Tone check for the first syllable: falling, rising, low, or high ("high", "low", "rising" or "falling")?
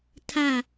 falling